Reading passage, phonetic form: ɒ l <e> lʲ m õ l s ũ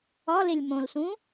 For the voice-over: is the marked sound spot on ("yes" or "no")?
yes